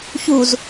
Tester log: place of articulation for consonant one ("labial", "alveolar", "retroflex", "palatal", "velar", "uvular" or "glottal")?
palatal